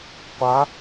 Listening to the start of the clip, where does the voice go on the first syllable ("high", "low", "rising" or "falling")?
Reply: rising